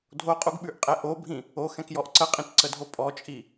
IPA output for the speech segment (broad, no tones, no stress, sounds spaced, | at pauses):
dʱ o qʼ u ɡ ɓ ʉ ʔ qʼ ɛ ʔ o bʱ ĩ | o x ɛ̃ k j ɔ ʔ ǀ ə qʼ ĩ t ǀ ə dʱ o pʼ ɔ t͡ʃʼ i